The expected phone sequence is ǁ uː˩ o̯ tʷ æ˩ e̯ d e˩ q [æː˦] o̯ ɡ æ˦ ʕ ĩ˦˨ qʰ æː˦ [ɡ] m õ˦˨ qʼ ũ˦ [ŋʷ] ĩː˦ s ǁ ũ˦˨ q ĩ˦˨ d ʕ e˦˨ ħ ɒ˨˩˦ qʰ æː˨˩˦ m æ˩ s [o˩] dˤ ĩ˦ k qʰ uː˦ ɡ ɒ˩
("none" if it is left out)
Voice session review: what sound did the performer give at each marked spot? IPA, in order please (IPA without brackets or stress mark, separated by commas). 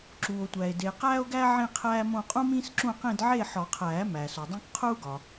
æː˦, none, m, o˩